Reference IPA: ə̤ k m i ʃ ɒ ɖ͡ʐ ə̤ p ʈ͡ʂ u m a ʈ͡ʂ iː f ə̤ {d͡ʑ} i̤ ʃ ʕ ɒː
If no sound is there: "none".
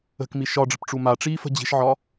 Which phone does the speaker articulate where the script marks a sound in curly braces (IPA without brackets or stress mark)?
d͡ʑ